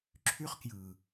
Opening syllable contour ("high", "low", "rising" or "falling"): high